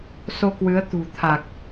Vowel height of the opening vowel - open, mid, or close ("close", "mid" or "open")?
mid